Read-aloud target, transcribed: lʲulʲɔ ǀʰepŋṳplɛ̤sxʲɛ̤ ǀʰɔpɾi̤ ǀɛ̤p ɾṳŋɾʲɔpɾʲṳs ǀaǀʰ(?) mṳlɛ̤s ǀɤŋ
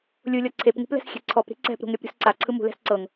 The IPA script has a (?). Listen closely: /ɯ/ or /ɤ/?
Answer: ɯ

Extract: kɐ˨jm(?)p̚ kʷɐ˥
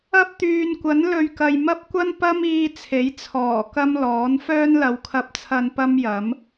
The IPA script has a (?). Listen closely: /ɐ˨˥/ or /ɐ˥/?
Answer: ɐ˥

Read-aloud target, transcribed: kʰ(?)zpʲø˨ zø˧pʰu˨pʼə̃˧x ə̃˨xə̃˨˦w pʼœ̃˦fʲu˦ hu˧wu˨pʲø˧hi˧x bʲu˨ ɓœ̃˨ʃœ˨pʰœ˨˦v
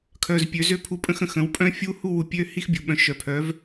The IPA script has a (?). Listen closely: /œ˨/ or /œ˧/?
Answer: œ˨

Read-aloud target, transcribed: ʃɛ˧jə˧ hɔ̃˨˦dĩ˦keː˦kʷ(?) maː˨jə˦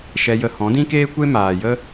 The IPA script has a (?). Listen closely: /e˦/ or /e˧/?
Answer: e˦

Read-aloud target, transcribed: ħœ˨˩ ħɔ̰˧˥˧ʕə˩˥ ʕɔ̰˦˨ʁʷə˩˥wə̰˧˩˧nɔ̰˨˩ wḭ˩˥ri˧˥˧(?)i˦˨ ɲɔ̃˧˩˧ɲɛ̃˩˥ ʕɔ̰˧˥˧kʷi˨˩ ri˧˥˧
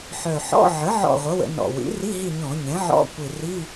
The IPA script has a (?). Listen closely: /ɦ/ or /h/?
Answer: ɦ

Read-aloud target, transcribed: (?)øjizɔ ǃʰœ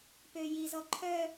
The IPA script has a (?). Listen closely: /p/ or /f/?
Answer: p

